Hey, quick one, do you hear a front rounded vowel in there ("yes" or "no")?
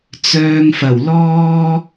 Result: yes